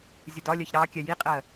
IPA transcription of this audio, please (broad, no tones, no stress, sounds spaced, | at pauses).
zʲ ʊ d ɒ lʲ ɜ ç ɾ ɑ kʲ ɛ j i qʼ ɜ